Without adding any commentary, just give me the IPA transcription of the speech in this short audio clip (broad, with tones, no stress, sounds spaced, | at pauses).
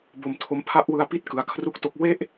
b o˧ m tʰ o˦˥ m pʰ a˥˩ ʔ w ɯ˧ a̯ p i˥˩ t̚ k ɯ˧ a̯ kʰ r u˥˩ k̚ t o˦˥ k̚ w e˥˩ ʔ